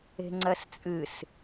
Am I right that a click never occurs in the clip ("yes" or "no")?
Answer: no